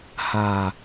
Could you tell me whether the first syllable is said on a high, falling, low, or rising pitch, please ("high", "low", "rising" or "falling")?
low